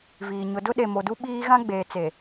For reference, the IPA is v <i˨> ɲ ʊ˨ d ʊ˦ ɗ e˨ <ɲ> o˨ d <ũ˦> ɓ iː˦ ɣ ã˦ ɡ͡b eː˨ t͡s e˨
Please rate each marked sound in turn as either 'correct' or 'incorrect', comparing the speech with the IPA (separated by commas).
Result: incorrect, incorrect, incorrect